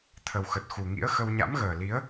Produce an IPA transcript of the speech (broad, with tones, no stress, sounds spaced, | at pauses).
t̪ʰ ə˨˩ w x ə˨˩ t̚ x u˨˩ ŋ ḭ˧˥ ə̯ x ə˧ w ɲ a̰˧˥ m ɣ əː˨˩ l i˨˦ ə̯